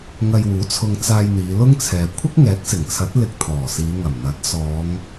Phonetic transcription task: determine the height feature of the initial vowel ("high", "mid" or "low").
low